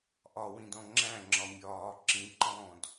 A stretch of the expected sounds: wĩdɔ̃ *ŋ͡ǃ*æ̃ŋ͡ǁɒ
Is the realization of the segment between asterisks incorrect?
yes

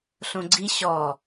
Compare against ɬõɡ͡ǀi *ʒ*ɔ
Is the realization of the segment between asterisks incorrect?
yes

